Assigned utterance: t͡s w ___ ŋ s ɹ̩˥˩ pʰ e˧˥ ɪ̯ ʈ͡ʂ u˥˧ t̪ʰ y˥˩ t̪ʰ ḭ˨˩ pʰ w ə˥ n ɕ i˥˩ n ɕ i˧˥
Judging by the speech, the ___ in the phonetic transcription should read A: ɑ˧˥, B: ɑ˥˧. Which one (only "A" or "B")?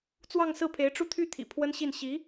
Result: B